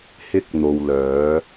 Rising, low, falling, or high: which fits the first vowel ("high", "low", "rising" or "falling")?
high